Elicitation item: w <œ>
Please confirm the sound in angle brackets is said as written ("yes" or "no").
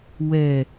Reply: no